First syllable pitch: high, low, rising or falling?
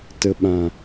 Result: low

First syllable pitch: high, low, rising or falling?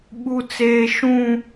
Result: high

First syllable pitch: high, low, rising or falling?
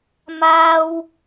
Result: high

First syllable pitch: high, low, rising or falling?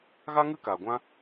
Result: high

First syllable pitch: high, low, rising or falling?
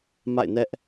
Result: falling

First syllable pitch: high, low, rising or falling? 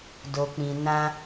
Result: low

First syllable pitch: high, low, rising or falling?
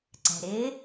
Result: low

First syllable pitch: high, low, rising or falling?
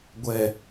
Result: low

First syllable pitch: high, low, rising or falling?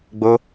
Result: high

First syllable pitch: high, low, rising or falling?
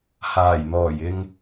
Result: low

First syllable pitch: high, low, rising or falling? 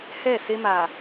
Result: falling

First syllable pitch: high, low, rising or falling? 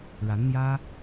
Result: rising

